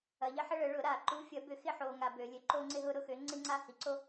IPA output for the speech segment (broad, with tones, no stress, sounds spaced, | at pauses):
ɐ˨ ʎ ɐ˦ ħ ə˦ ɭ ə˨˩˦ ɭ ʊ˨˩˦ ɾ a˨˩˦ ǃ u˨˥ fʲ ɐ˨˩˦ b ʏ˨˩˦ x ɪ˦ ħ o˨ ŋ a˨ b ø˨˩˦ lʲ ø˨˥ ǃ o˦ ŋ͡ǀ ɪ˦ ɦ ʊ˦ ɾ ʊ˦ x ø˨˥ ŋ͡ǀ ɪ˦ ŋ͡ǀ a˦ h i˨˩˦ ǀ o˦